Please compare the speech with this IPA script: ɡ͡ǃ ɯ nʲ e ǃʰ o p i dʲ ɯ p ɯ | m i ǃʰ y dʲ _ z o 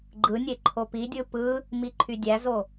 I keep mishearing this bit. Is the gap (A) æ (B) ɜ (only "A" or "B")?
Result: A